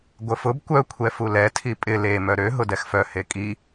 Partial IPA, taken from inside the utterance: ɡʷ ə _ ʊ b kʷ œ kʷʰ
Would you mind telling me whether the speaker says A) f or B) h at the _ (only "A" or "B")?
A